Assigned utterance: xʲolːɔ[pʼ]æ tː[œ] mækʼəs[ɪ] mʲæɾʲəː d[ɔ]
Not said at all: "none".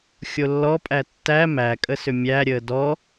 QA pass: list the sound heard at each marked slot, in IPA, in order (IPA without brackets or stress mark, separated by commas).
pʼ, æ, ʏ, ɔ